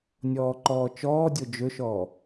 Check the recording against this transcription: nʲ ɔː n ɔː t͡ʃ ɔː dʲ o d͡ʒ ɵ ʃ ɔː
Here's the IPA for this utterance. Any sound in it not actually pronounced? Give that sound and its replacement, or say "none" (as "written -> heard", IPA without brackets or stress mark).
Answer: n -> ǃ